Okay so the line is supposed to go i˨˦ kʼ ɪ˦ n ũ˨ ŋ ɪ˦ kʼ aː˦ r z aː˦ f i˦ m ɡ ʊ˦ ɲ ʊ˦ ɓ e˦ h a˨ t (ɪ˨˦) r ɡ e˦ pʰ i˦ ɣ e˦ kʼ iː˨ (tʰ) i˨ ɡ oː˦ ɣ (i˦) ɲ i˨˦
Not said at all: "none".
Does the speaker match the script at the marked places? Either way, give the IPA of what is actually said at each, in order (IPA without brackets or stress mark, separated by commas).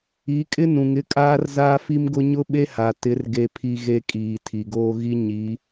ɪ˨˦, tʰ, i˦